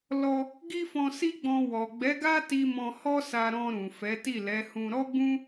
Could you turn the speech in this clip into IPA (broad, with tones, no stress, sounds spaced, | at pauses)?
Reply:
l ɔ˧ | ɡ i˦ f ɔ̃˧ s i˦ ɡ͡b ɔ̃˧ w ɔ˨ ɡ͡b ɛ˨˦ ɡ a˦ t i˧ m ɔ̃˧ h ɔ˦ s a˧ ɾ ɔ̃˧ ɾ ũ˨ f ɛ˨˦ t i˦˨ l ɛ˨˦ h ũ˧ ɾ ɔ˦ ɡ͡b ũ˦